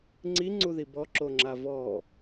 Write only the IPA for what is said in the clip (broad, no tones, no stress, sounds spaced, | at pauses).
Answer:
ŋ͡ǀ i ŋ͡ǀ u ð i b ɔ ǁ o ŋ͡ǁ a v ɔ